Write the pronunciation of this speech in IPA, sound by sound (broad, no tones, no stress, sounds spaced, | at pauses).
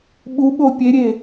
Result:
ɓ u ɓ o pʲ e ɾʲ e